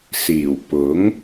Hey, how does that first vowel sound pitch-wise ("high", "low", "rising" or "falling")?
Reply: low